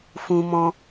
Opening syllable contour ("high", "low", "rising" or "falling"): high